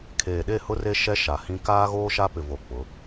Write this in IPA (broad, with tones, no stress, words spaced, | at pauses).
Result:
kʰeː˨ɗe˦˨ hʊ˦re˦ ʃɛ˦ ʃa˨hĩ˦ kaː˦ɣoː˦ʃa˦pɪ˨ vo˨ k͡pʊ˨˦